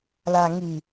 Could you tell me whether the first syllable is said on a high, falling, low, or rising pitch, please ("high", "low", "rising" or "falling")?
low